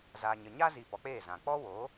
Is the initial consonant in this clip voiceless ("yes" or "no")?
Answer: no